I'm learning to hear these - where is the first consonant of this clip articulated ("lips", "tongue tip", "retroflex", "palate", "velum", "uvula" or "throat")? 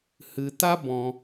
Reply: throat